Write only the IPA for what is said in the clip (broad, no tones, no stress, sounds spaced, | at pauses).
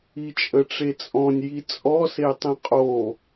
i t͡ʃʼ ə ʈ͡ʂ e t͡sʼ ɔ̃ nʲ j i t͡sʼ ɔ s e tˤ ẽ qʼ o